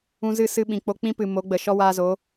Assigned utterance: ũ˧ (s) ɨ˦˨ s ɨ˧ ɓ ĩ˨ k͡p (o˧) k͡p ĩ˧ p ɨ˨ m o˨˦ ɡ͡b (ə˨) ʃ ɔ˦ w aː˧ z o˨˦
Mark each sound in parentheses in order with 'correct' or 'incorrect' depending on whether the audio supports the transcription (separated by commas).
incorrect, correct, correct